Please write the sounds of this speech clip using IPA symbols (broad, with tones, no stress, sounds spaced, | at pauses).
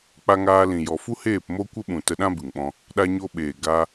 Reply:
k͡p a˧ ŋ aː˧ l ĩ˨ j ɔ˨ f u˦ h eː˦˨ p m o˦ kʷ ə˦ ɓ ũ˨ t ə˧ ɗ ã˦ b ɨ˨ ŋ ɓ ɔ̃˧ | ɗ a˧ ɲ o˧ ɓ eː˨ ɡ a˧